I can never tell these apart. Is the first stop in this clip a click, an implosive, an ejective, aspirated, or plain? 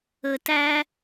plain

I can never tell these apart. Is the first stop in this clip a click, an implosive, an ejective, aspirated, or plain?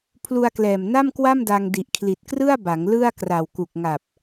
aspirated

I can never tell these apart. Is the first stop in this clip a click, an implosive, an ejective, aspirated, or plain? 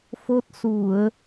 plain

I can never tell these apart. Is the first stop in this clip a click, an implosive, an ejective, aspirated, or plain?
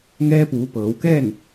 plain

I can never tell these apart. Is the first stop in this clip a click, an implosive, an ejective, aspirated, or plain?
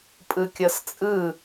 ejective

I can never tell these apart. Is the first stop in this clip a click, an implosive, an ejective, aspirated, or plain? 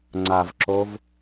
click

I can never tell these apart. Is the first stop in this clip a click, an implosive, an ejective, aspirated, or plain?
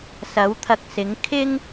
aspirated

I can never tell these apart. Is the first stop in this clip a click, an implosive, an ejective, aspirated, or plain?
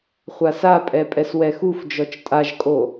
ejective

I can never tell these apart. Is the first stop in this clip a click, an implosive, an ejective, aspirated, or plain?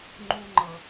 click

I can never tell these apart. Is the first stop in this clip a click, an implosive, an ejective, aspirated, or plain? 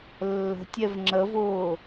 plain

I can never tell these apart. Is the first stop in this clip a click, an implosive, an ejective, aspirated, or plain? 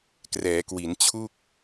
plain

